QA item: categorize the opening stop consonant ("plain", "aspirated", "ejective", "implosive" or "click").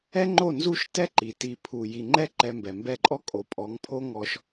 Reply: click